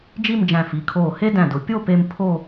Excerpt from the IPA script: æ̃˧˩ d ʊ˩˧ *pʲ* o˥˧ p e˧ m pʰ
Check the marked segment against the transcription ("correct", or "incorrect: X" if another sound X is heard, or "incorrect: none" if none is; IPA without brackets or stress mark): correct